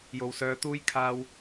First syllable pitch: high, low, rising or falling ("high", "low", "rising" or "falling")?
low